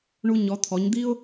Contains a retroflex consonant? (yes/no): yes